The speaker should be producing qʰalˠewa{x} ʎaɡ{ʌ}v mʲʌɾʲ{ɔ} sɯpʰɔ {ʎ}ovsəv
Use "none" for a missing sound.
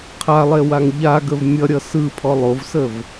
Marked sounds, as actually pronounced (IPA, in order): ŋ, ə, ʌ, lˠ

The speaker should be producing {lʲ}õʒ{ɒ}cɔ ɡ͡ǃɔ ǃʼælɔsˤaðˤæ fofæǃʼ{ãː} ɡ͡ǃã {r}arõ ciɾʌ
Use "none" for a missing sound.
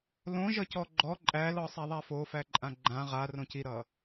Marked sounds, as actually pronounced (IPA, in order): l, ʌ, ã, ʁ

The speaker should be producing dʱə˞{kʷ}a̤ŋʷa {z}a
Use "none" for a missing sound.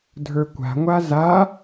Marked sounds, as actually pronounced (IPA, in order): kʷ, z

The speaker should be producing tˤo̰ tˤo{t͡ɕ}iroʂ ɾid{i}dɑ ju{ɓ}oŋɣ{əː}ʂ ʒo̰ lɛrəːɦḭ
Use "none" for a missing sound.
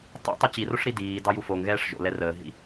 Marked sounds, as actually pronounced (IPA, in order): t͡ɕ, iː, f, ɛː

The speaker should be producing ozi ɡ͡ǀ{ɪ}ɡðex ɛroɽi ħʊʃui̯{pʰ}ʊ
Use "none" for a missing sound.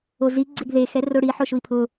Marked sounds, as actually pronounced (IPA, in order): ɪ, pʰ

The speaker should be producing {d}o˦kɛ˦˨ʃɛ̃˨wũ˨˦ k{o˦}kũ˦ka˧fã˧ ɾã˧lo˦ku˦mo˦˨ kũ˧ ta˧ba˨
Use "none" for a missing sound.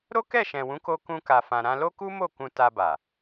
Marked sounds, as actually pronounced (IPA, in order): ɾ, o˦

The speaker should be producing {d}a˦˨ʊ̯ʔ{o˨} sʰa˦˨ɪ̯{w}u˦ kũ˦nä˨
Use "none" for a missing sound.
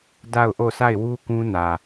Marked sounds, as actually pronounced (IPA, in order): d, o˦˨, w

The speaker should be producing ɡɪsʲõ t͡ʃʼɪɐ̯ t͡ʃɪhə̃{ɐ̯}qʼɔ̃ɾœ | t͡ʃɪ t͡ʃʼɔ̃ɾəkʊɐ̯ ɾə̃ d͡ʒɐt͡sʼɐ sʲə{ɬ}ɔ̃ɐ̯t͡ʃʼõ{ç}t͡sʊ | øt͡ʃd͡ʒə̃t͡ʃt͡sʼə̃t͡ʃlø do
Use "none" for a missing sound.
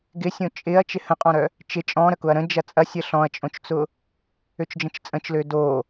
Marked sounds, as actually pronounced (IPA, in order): none, ɬ, t͡ʃ

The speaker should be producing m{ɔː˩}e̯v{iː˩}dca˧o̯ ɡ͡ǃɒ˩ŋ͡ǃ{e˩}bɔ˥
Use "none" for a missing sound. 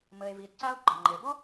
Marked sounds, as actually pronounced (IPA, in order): əː˩, iː˩, e˩

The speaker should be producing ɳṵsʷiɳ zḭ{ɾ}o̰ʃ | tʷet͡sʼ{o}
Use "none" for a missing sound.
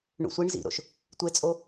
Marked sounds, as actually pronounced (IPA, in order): ɾ, o

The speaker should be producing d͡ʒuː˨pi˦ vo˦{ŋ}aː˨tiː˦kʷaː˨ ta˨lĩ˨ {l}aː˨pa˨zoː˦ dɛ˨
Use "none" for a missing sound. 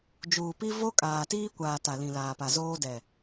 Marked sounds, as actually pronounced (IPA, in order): kʼ, l

